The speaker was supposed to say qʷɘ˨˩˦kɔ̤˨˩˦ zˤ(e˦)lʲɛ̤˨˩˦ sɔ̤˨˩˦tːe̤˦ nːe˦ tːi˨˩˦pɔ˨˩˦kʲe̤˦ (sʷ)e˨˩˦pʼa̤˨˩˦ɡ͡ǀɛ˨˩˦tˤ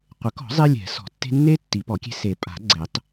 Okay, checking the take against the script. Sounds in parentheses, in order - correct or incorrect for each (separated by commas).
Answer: correct, incorrect